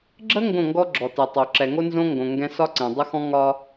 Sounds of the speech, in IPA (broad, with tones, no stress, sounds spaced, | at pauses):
ɡ͡ǁ ə˦ ŋ ɡ õ˦˨ ŋ ɡ ɔ˦ ɡ͡ǁ ɔ˨ t ɛ˨ tˤ o˨ ǁ ɛ˨ ŋ o˦ n z õ˦ ŋ ɡ õ˨ ŋ ɡ ɛ̃˦ s ɒ˦ ǀ ɛ̃˨ dˤ ə˦ x ɔ̃˦ ŋ ɒ˦